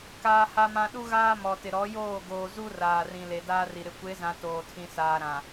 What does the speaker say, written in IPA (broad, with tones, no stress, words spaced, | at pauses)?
kaː˦ha˦mã˦ ɗu˦ɣaː˦ mɔ˨tɪ˨ ɾɔ˨˦joː˦˨ ɡoː˨zu˦ raː˨rĩ˨ le˨daː˦ri˨ ɾɪ˨kʷe˨˦zã˨ toː˨tʰĩ˨saː˨ɾã˨